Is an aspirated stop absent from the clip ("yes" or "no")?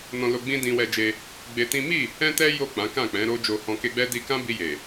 yes